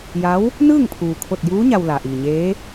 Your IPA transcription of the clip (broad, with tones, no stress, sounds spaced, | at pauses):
j a˧˥ w | n ɯː˥˨ ŋ pʰ uː˩ kʰ o˧˩ t̚ j uː˧˥ ɲ a˧ w l a˩ ʔ iː˩ ɲ eː˧˥